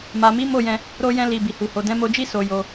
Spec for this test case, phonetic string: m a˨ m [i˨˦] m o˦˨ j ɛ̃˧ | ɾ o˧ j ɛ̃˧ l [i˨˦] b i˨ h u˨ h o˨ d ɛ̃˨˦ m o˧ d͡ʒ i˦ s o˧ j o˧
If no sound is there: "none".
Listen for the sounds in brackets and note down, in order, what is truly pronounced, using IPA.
i˨˦, i˨

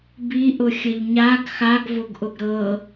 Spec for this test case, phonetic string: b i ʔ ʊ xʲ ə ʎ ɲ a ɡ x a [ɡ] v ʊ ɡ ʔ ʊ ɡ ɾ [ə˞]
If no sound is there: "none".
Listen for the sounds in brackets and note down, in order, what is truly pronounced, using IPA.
ɡ, ɤ

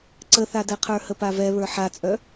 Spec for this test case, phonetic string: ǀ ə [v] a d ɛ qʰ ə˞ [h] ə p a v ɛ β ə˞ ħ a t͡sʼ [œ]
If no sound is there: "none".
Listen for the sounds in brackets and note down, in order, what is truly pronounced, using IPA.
θ, h, œ

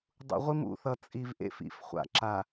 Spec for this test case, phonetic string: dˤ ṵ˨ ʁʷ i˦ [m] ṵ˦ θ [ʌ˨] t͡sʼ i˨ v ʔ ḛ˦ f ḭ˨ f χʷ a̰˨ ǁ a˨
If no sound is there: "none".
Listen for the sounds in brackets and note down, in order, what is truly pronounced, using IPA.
m, ʌ˨

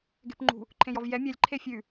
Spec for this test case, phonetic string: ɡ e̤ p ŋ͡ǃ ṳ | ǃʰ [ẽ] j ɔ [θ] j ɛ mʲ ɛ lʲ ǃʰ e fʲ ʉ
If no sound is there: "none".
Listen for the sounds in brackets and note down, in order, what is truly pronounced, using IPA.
ẽ, v

